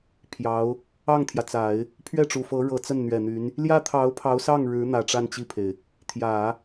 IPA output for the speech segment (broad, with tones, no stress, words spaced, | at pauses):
pʰjɑ˧˥ʊ̯ | ɑ˥˩ŋt̪ʰjä˩t͡sa˨˩˦ɪ̯ | pʰɥɛ˥˩ʈ͡ʂu˨˩fɤ˧˥ ɻɤ˧˥t͡sə˥˩n n̪ɥɛ˨˩n̪y˧˥n | ljä˥t̪ʰɑ˧˥ʊ̯pʰɑ˧˥ʊ̯sɑ˥˩ŋ ɻɻ̩˧˥n̪ä˨˩ ʈ͡ʂa˥˧nt͡ɕi˥˩pʰe˩ɪ̯ | t̪ʰjä˨˩˦